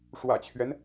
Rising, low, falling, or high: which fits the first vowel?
low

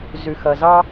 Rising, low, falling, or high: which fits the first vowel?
low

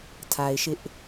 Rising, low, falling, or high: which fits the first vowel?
low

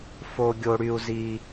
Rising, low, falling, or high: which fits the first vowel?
high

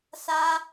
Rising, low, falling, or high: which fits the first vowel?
high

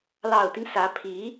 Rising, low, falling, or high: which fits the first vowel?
low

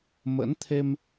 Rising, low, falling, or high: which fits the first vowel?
rising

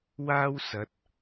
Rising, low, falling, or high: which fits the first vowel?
high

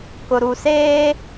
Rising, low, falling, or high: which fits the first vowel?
low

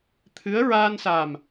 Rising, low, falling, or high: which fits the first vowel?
rising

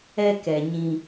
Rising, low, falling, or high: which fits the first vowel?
high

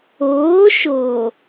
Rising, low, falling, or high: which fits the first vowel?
rising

